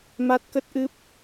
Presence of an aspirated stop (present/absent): absent